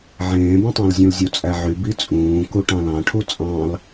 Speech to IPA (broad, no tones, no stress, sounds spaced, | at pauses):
ʕ ẽː b õ tˤ æ̃ l zʲ ũ l zʲ u t͡sʼ æ ʕ y b i t͡sʼ ũː k u ʈ ɑ̃ l ɑ̃ ʈʰ u t͡sʼ ɑ̃ l